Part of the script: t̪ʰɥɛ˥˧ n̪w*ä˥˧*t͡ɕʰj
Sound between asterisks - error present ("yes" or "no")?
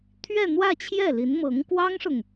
no